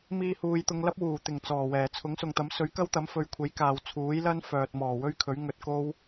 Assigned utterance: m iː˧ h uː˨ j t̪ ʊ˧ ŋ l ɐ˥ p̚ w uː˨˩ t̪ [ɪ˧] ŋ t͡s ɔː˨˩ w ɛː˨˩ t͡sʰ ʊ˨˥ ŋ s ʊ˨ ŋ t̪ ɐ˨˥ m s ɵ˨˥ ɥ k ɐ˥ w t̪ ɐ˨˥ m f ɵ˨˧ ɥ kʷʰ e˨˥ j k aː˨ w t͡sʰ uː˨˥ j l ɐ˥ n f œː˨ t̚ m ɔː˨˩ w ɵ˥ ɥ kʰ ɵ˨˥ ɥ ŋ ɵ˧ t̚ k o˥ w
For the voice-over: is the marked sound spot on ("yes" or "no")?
no